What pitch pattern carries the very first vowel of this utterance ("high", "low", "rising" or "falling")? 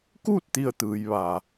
falling